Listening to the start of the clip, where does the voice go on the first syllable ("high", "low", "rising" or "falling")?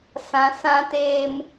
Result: low